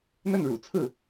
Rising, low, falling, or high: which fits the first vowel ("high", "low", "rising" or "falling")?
falling